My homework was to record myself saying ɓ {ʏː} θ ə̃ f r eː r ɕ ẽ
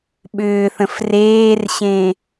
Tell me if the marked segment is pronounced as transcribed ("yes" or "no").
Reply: yes